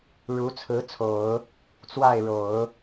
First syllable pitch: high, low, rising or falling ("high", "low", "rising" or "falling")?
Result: rising